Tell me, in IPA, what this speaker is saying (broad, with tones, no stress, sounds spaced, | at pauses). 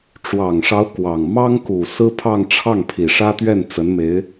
ʈ͡ʂ w ɑ˨˩ ŋ ʂ ɑ˧˥ ʊ̯ k w ɑ˨˩ ŋ m ɑ˥ ŋ k u˨˩ s ɹ̩˥ pʰ ɑ˥˧ ŋ ʈ͡ʂʰ ɑ˥˩ ŋ pʰ i˨˩ ʂ ä˥ t̪ ɥ ɛ˥˩ n t͡s ə˧˥ n m e˧˥ ɪ̯